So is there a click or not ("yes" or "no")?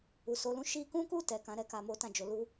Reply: no